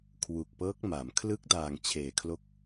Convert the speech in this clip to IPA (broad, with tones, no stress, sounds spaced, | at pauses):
kʰ w u˨˩ k̚ p ɤː˦˥ k̚ m a˩˦ m kʰ l ɯ˦˥ k̚ d aː˨˩ ŋ t͡ɕʰ eː˩˦ kʰ l o˦˥ k̚